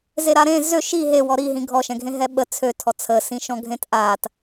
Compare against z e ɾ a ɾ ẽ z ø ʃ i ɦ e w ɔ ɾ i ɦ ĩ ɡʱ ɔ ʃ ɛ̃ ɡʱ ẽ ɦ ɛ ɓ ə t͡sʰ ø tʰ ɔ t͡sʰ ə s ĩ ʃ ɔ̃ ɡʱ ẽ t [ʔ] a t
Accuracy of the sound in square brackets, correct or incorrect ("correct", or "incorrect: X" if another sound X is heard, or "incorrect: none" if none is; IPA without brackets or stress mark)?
correct